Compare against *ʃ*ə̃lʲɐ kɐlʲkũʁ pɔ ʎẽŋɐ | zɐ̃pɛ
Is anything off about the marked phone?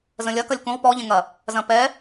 yes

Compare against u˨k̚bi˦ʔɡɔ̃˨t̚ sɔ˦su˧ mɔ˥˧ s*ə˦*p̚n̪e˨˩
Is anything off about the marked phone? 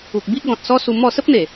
no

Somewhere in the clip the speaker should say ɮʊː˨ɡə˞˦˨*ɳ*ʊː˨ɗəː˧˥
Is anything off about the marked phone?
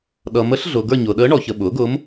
yes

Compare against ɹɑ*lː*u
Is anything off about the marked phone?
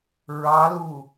yes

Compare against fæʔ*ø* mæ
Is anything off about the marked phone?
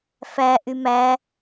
yes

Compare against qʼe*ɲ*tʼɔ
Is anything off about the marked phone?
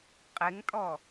yes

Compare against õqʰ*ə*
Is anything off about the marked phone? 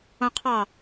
yes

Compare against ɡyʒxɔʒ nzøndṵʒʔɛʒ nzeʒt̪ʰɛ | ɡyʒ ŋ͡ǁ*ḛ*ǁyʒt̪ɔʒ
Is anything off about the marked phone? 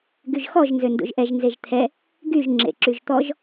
no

